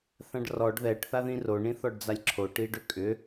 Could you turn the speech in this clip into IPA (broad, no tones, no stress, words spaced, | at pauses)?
θãɖrɔɖ ðɛʈ θaðĩro ɳĩθɔɖd͡zalʲǁʰo ʈiɖʏkʼʏ